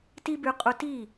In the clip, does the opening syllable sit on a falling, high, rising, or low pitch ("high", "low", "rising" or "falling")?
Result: high